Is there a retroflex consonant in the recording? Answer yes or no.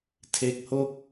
no